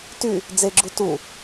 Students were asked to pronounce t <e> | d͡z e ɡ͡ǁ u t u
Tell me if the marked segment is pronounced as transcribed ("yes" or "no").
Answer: no